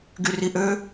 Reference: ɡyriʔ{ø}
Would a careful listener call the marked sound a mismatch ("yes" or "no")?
no